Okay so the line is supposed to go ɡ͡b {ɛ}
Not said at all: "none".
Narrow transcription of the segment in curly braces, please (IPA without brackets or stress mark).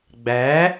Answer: æ